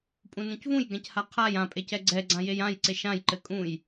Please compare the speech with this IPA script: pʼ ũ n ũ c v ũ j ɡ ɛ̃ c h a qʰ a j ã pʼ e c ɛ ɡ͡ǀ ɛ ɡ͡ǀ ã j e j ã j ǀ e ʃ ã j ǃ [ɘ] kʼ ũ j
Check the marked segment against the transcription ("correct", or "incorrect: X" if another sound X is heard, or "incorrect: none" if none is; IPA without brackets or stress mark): correct